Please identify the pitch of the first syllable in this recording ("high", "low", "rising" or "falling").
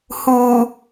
low